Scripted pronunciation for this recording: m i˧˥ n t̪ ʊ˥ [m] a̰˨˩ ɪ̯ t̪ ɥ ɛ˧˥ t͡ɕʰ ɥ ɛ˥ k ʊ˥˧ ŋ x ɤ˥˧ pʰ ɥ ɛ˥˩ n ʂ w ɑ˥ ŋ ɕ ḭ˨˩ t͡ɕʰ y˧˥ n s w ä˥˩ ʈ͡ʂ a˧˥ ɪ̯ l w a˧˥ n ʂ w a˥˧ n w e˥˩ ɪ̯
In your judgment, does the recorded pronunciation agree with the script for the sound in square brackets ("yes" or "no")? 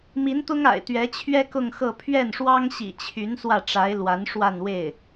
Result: no